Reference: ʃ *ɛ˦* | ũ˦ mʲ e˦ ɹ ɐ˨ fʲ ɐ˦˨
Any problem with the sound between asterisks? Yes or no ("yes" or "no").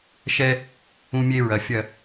no